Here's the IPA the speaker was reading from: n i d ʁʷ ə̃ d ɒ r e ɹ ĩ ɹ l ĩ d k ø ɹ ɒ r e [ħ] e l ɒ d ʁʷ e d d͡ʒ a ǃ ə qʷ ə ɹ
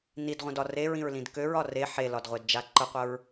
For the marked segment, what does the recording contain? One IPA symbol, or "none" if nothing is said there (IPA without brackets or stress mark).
ħ